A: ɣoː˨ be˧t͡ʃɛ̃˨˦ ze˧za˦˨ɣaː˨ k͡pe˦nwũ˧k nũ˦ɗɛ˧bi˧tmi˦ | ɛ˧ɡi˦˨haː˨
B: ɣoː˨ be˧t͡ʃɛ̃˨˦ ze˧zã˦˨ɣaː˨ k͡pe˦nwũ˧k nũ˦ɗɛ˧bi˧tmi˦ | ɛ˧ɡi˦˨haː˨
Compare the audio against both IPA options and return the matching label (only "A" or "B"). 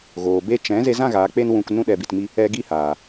B